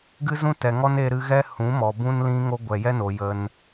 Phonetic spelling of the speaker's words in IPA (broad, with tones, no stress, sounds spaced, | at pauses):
ɡ ɨ˦ z ũ˦ t ɛ˨ ŋ ɔ˦ n e˧ ɾ ɨ˧ ɣ ɛ˦ h ũ˨˦ m ɔ˨ b ũ˦ n l ĩ˦ ŋ o˦ ɡʷ ɛ˨ j ɛ˦ n o˨ j ə˧ n